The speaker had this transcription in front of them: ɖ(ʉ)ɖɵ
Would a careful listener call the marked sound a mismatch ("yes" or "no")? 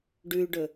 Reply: no